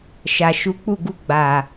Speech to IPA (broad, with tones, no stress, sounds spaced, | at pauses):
ʃ a˨ ʃ u˨˦ k͡p u˦˨ ɡ u˧ ɡ͡b a˨